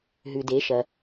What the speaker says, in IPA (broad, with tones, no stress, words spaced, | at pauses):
ɦʉ˨de˨˦ ʃɐ˨